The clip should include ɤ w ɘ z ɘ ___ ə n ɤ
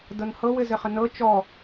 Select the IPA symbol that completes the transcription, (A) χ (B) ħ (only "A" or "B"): A